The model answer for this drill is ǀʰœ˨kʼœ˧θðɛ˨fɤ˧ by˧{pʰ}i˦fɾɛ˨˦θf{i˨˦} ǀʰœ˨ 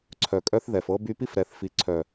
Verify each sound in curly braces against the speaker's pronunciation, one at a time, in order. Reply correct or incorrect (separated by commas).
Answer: incorrect, correct